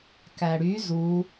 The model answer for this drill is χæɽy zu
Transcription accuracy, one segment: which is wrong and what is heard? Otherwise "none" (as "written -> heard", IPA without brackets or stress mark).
χ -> k